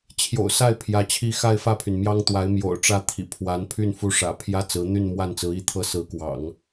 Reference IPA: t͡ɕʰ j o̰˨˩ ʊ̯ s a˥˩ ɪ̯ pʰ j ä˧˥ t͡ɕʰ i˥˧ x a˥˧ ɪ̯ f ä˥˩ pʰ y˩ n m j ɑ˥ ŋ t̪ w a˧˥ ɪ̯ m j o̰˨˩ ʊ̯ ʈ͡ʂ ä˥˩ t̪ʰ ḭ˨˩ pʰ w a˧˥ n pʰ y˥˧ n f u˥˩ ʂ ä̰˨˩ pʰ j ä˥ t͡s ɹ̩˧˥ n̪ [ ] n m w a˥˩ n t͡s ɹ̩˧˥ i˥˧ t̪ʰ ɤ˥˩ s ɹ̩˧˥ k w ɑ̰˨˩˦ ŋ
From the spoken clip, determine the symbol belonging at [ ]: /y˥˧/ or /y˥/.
y˥˧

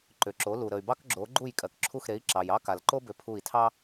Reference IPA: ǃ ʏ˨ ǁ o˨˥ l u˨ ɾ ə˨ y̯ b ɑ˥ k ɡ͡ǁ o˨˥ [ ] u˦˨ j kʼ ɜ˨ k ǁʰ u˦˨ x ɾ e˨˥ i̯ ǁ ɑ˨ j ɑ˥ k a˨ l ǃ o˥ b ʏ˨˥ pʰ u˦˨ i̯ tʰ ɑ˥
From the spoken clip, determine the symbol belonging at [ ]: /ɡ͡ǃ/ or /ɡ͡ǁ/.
ɡ͡ǃ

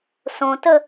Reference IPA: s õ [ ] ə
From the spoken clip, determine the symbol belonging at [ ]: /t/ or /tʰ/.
t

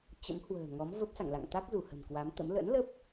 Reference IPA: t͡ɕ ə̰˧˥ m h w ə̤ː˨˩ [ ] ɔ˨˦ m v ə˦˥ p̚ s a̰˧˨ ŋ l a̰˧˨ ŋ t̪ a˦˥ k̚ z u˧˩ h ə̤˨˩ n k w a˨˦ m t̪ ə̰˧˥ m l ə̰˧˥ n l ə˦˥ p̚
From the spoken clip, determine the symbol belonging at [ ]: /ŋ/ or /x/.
ŋ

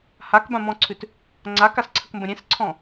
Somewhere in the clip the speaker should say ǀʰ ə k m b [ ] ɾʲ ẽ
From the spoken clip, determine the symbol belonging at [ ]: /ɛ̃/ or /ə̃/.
ə̃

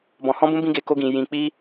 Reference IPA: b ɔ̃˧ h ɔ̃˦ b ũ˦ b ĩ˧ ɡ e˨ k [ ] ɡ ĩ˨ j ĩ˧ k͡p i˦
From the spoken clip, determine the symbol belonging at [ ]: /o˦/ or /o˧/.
o˧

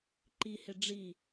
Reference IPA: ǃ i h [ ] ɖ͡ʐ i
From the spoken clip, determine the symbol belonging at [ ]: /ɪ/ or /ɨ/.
ɪ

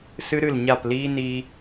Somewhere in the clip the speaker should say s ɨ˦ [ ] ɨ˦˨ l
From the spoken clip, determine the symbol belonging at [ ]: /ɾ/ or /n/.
ɾ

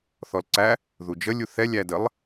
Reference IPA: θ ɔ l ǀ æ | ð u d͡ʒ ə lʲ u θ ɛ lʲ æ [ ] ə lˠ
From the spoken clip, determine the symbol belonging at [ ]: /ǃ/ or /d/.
d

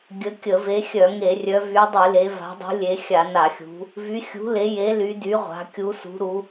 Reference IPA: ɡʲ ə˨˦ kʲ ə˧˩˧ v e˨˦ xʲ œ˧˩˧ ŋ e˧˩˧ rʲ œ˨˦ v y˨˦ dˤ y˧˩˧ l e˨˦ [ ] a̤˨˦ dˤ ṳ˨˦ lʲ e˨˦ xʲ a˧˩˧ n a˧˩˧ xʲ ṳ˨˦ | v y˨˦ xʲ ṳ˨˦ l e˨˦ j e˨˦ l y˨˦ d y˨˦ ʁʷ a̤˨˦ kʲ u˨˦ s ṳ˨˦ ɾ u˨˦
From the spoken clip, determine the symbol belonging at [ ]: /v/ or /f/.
v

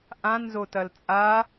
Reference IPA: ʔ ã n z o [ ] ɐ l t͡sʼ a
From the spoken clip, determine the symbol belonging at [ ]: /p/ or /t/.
t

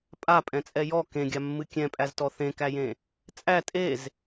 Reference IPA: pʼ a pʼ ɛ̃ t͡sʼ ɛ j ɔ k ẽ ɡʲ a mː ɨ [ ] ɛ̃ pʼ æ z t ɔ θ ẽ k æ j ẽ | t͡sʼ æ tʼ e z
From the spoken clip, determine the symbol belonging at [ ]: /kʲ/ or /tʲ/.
kʲ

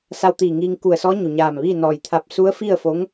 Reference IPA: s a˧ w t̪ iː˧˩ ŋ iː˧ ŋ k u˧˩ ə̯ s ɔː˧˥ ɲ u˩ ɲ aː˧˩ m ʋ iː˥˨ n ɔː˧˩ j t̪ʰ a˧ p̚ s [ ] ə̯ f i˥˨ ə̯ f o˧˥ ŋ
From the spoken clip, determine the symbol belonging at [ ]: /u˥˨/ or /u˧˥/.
u˧˥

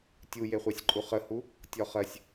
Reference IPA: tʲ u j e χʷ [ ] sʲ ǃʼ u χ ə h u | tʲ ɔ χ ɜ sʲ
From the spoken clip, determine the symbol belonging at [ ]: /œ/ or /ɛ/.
ɛ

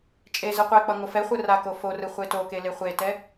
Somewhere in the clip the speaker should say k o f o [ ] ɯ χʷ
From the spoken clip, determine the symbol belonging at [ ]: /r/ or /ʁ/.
r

